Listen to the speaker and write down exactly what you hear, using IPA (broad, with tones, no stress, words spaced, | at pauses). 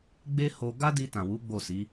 ɡ͡be˦ho˧ ɡa˦di˧ tã˨wu˨˦ ɡ͡bo˦˨si˨˦